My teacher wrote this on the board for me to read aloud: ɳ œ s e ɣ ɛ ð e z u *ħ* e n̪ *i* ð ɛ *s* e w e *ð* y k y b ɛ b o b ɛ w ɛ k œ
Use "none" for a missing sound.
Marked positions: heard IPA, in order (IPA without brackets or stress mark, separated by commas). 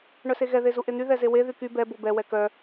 ʔ, y, z, ð